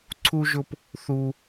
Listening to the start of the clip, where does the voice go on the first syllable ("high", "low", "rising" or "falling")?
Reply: high